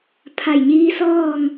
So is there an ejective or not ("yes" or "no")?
no